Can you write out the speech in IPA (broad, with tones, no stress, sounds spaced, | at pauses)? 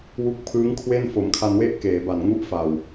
w u˦˥ k̚ pʰ ɯː˦˥ ŋ kʰ w e˥˩ n f o˩˦ m kʰ a˧ n w e˥˩ ʔ k eː˩˦ b a˨˩ n ŋ u˦˥ ʔ f a˨˩ w